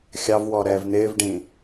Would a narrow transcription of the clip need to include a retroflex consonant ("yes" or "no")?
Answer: yes